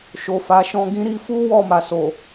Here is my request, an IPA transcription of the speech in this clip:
ʃ o˨ f a˨˦ ʃ ɔ̃˧ ɡ ĩ˧ ɾ i˧ f u˦ w ɔ˦˨ m a˨ s o˨

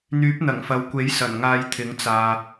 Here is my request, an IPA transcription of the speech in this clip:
n̪ yː˨˥ p̚ n̪ ɐ˨˩ ŋ f ɐ˨ w kʷ e˨˥ j s ɐ˨˩ n ŋ aː˧ j t̪ʰ ɪ˨˥ ŋ t͡s aː˨

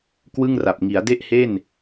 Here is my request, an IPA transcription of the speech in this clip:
k w ɯ˥˩ ŋ r a˨˩ p̚ ŋ i˩˦ a̯ d e˥˩ ʔ h e˥˩ n

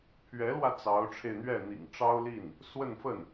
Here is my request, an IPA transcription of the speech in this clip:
pʰ ɥ ɛ˧˥ l w ä˧ t͡s ɑ˧˥ ʊ̯ ʈ͡ʂʰ e˧ ɪ̯ n̪ ɥ ɛ˥˩ n̪ ḭ˨˩ ŋ ʈ͡ʂ ɑ˥ ʊ̯ l i˥˩ n | s w ə˥˧ n f ə˥˩ n

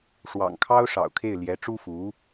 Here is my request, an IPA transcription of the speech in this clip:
ʂ w ɑ̰˨˩ ŋ kʰ ɑ˥ ʊ̯ ʂ ɑ̰˨˩ ʊ̯ kʰ e˥˩ ɪ̯ l j ɛ˧˥ ʈ͡ʂ u˥ f u˧˥

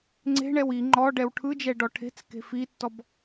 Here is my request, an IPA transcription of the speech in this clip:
ŋ͡ǀ e̤ ɳ ɛ w i ŋ͡ǃ ɔ ɖ ɛ w ʈʰ ɯ d͡ʒ ɛ ɖ ɔ ʈʰ e̤ t͡s k e̤ f i tː ɔ b

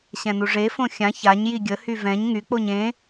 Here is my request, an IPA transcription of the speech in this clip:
ɕ ɛ̃ n u ʐ e f õ xʲ ã ç a ɲ j i ɡʲ ə h y v ɛ̃ ɲ ŋ y k͡p o ɲ ẽ

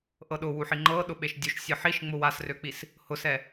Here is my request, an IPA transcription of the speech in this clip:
ʔ ɤ ɗ ʊ w u ħ i ŋ͡ǃ ɤ ɗ ʊ ɓ e ʃ dʲ u ʃ sʲ ɤ ħ i ʃ ŋ͡m ʊ w a s r ø k͡p i s | h ʊ s ɛ

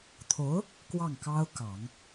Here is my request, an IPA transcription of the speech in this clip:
t̪ʰ o˧˥ ʊ̯ | k w ɑ˥˩ ŋ k ɑ˥ ʊ̯ k ɑ˨˩˦ ŋ

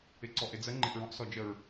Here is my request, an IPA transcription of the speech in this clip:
ɪ ǀ ɔ ʔ ɪ d͡z ə ŋ͡ǃ ɪ ʔ ɹ ɔ̃ ʔ s ɔ d͡ʒ ə ɹ

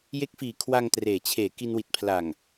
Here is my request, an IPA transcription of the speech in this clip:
j e˦˥ k̚ f iː˨˩ kʰ w a˧ ŋ t r eː˨˩ t͡ɕʰ eː˨˩ k i˧ n w i˨˩ t̚ pʰ l a˨˩ ŋ

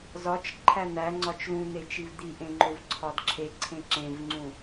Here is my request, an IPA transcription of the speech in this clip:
z ɒ t͡ʃ ǃʰ æ n̪ æ ŋ͡ǀ ɒ t͡ʃ l ũ n̪ e t͡ʃ i v d̪ i ʔ ẽ ŋ͡ǃ o v ǀʰ ɒ d ǁʰ e ǀʰ ẽ ǁ ẽ v ŋ͡ǀ ũ

